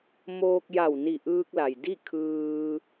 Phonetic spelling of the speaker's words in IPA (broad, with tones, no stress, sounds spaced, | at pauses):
m oː˧ k̚ j a˧˩ w n i˧˩ ʔ ɯː˧ k̚ l a˩ j d i˥˨ kʰ ɯː˧